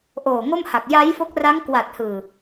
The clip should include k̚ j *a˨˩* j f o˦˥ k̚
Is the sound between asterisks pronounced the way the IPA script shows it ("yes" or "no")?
no